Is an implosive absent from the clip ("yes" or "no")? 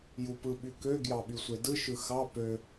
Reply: no